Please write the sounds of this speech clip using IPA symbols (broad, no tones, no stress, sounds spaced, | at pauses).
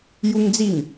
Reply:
j u ŋ d͡z i ŋ